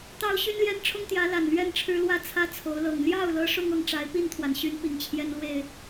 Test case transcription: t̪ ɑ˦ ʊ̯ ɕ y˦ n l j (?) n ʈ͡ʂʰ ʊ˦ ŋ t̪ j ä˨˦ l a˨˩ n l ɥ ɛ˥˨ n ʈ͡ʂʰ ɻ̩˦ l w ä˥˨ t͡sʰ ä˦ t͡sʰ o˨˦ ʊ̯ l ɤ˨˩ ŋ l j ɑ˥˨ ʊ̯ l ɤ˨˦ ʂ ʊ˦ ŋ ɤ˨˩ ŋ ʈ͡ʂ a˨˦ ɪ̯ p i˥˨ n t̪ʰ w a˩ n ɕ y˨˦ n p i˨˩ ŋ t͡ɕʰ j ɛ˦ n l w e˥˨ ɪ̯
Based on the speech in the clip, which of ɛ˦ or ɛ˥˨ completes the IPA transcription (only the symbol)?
ɛ˦